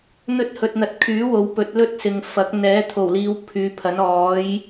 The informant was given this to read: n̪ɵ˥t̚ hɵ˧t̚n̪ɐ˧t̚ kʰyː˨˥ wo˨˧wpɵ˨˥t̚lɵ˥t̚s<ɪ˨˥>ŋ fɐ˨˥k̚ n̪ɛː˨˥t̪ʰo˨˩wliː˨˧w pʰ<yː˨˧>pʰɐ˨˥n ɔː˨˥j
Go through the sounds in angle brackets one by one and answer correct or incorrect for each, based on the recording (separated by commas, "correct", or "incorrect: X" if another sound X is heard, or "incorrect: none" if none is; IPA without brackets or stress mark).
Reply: incorrect: ɪ˨, correct